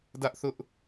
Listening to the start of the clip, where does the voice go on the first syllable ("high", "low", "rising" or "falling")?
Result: high